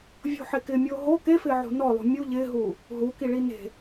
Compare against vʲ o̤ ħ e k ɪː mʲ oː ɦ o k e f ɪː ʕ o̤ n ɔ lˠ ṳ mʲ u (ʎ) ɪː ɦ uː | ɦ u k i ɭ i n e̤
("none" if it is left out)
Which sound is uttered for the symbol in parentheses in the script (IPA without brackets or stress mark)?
ʎ